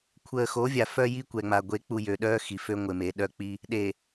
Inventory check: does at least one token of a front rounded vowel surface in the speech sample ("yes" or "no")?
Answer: yes